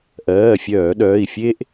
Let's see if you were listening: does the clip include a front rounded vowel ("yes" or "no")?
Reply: yes